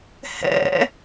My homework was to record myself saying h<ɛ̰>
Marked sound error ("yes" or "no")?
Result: no